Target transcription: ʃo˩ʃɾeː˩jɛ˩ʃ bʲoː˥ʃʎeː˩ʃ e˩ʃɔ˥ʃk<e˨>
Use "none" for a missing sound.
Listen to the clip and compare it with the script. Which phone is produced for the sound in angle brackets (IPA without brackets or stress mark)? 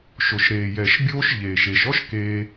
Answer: eː˨